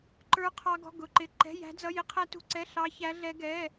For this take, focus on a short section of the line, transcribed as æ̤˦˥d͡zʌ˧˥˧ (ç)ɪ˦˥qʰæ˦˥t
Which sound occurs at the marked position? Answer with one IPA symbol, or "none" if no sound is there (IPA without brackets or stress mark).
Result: j